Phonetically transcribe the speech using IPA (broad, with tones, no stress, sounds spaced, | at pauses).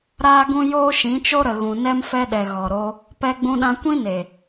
ɾ aː˦ ɡ ũ˦ j oː˦ ʃ ĩ˨˦ t͡ʃ o˦ ɾ ə˨ ɣ ũ˨ n ɛ˦ m f ɛ˧ ɗ ɛ˨ ɣ ɔ˨ ɾ o˧ | p ɛ˧ ɡ͡b ũ˧ ɗ ã˧ kʷ ĩ˦ n e˨